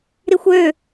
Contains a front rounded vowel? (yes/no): yes